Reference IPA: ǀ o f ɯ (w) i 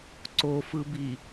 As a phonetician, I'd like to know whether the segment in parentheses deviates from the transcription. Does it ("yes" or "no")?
yes